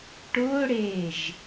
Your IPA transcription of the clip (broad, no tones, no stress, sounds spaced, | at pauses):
ʈ ʊː ɽ eː ʒ